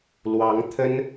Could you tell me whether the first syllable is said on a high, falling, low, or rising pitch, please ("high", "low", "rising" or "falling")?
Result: rising